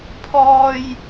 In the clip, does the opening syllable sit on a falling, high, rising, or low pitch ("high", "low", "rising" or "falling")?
high